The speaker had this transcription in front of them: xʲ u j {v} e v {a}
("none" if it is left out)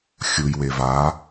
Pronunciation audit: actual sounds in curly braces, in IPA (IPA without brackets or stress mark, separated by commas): w, a